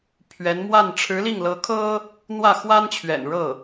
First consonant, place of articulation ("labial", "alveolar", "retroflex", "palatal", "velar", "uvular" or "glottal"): labial